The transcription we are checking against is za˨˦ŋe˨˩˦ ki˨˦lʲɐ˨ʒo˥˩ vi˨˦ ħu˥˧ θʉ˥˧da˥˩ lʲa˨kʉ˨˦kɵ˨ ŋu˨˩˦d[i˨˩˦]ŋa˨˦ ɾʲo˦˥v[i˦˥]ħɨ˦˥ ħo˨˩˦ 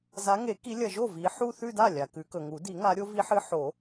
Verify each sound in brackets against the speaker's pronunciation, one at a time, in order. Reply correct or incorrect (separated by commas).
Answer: correct, correct